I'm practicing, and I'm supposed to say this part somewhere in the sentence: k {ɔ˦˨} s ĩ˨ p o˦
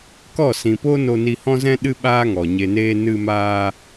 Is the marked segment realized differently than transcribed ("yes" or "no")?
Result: no